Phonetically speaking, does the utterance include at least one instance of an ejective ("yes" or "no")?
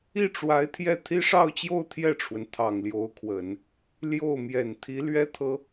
no